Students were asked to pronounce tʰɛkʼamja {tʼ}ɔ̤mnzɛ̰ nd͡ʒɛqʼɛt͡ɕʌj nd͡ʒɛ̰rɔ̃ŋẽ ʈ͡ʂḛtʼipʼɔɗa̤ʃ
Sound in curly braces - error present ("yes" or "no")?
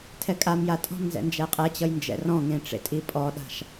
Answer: no